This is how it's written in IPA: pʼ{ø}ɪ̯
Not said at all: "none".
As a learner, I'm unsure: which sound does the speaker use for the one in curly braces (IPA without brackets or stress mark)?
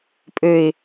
ø